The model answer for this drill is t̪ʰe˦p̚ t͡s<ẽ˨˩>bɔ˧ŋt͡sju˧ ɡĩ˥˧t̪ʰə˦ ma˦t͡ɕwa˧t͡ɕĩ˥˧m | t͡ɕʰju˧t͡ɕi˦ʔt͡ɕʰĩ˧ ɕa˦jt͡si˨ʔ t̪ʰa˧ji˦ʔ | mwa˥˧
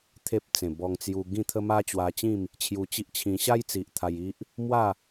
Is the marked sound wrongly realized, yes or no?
no